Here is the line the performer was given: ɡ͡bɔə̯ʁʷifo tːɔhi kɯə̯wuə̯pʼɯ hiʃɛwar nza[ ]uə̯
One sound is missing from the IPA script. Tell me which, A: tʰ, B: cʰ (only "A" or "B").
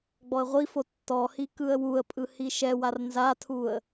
A